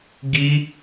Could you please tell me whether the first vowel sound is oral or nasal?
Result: oral